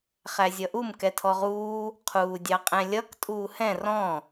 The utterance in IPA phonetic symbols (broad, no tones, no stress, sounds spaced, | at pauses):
χ æ zʲ ʌ ʔ u m k ɛ tʰ ɔ ʁ uː | qʰ uː dʲ ɑ qʼ ɛ̃ lʲ ʌ k tʼ uː h ɛ̃ r ɔ̃